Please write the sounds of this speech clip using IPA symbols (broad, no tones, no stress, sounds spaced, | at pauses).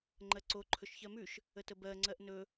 ŋ͡ǃ ɜ ǀ o ǃʰ ɵ ʃ ç ɜ m ʉ ʃ | ə t ə b ɜ ŋ͡ǀ ɜ ʔ n ɵ